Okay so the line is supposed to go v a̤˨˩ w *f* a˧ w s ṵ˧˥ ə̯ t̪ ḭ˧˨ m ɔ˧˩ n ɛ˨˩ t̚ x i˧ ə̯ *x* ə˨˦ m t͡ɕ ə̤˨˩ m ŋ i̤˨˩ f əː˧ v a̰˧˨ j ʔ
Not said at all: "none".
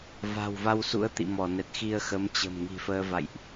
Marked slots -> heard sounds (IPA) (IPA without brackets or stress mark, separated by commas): v, x